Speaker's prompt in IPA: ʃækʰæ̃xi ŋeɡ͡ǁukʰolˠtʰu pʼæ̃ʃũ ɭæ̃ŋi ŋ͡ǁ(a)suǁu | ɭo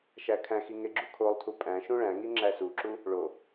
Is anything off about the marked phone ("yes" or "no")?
yes